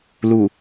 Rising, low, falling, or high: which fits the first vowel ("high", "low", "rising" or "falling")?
low